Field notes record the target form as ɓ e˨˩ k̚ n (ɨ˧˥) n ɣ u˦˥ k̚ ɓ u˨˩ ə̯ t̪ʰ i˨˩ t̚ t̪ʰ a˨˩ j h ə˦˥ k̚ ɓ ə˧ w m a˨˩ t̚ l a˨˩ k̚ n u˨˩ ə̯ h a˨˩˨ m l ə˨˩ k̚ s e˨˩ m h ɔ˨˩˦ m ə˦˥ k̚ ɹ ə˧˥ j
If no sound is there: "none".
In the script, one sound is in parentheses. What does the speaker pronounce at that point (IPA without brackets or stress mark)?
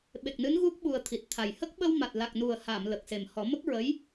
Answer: ɨ˧˥